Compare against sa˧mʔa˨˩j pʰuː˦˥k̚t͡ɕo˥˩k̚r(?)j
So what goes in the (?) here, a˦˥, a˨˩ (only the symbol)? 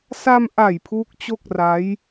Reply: a˦˥